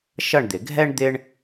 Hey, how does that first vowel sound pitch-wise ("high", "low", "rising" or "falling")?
falling